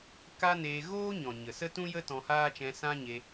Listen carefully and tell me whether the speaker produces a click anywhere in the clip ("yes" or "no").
no